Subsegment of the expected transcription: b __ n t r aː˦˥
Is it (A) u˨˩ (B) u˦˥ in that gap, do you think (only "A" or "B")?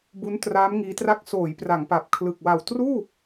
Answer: B